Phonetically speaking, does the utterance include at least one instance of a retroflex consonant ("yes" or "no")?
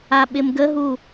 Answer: no